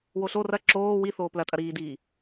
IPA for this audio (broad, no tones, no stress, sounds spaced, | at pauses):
w o ɬ o r ɐ ǁ oː w i θ oː p l ɐ tʼ ɐ ɾ iː d iː